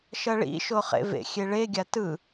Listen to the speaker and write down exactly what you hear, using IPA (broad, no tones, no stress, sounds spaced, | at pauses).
ʃ ʌ ɭ ḭ ʃ o χ ḛ v ḛ xʲ e ɭ e ɡʲ a t ɯ